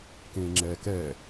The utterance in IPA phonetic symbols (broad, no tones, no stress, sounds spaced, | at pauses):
k ẽː ŋ͡ǁ ɛː k ɛ